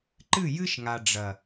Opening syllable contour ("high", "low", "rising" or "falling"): falling